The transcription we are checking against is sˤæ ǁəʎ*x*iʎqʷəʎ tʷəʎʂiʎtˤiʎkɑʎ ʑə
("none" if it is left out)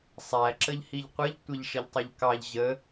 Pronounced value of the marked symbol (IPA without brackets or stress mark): h